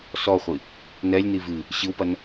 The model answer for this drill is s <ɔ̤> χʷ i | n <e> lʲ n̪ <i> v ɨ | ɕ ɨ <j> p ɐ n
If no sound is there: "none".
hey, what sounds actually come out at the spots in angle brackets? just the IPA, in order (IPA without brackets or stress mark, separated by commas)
ɔ, ɛ, i, w